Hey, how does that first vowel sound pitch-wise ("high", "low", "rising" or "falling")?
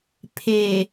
low